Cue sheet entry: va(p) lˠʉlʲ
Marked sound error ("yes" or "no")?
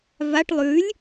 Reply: yes